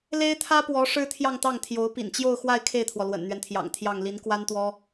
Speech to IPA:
le˥ɪ̯t̪ʰä˥pwɔ˧˥ ʂɻ̩˥t̪ʰjɑ˥˧ŋt̪ɑ˥˩ŋt̪ʰjo˧˥ʊ̯ pḭ˨˩nt͡ɕjo˥˧ʊ̯xwa˥˧ɪ̯ kʰe˥˩ɪ̯t̪ʰwɔ˩ lwə̰˨˩nn̪ɥɛ˦nt̪ʰjɑ̰˨˩ŋt̪ʰjɑ˥˩ŋ li˧˥nkwa˥nt̪wɔ˥

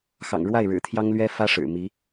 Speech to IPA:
xɑ̰˨˩ŋ ɻwa˥˩ɪ̯ ɻɻ̩˨˩t̪ʰjɑ˥ŋlɥɛ˥ fä˥ ʂɻ̩˨˩mi˧˥

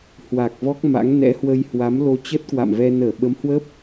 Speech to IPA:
hwa˨˩k̚vɔ˦˥k̚ma̰˧˥ŋ nɛ̰˧˥hwə˧jhwa˨˦m lo˧t͡ɕə˦˥t̚kwa̰˧˨mvɛ˧ nəː˧˩ɓə˨˦mhwə˦˥p̚

